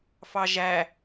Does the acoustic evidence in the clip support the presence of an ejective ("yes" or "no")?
no